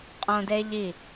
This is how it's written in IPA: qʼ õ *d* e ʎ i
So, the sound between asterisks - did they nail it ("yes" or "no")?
yes